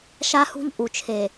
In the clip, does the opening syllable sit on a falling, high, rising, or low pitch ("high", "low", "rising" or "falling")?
high